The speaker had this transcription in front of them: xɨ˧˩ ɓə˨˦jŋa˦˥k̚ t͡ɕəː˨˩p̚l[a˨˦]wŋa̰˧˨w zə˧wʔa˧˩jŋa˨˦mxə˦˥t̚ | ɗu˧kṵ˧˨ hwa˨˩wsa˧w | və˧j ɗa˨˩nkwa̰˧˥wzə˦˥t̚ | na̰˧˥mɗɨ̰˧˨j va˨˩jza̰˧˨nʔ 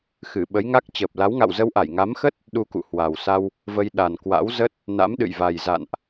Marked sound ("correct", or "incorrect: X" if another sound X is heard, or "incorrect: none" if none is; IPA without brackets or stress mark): correct